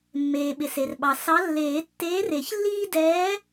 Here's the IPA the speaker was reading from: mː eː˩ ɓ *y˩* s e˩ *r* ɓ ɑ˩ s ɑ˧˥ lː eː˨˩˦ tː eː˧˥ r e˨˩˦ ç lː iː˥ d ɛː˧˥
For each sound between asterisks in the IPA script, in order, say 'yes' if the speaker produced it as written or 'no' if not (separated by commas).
no, yes